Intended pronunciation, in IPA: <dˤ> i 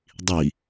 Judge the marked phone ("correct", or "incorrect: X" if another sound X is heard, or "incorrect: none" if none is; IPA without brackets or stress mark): correct